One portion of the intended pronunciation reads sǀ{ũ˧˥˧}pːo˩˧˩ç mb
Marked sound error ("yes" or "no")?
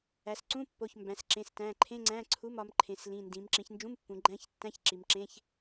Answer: no